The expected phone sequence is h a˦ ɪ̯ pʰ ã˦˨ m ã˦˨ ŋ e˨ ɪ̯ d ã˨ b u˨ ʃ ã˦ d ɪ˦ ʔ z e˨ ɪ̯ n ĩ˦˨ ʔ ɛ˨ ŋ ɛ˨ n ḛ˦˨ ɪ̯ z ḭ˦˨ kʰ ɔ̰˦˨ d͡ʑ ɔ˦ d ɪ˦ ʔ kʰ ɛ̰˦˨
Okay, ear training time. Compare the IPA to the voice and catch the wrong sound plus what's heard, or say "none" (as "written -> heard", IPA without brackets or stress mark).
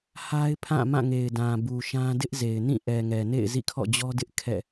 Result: none